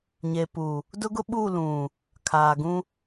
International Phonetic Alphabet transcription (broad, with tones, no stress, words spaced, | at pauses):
ɲe˨pu˨ | dʊ˦ɡʊ˦ ɓu˦˨ lũ˨ | kʰaː˨ɡũ˦